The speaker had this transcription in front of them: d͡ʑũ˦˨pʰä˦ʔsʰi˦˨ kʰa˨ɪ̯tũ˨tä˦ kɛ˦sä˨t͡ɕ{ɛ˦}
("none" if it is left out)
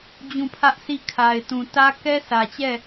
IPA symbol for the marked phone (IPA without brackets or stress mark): ɛ˦˨